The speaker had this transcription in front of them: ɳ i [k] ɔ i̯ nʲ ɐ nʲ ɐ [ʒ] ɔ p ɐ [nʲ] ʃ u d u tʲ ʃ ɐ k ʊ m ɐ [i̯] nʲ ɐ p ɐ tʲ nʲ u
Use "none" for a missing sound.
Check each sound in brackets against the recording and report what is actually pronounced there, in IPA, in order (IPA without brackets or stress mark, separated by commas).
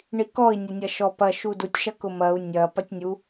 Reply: k, ʃ, none, u̯